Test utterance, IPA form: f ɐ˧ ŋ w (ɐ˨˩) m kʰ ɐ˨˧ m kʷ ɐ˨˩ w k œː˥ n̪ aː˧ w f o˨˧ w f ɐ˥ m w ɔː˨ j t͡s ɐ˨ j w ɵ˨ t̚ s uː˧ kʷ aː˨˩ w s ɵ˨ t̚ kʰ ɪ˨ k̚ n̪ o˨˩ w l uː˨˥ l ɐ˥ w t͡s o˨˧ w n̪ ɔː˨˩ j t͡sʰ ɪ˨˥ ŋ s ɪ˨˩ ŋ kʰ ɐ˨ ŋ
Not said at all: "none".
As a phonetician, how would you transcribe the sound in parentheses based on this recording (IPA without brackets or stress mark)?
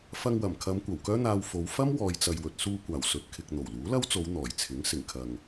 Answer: ɐ˨˩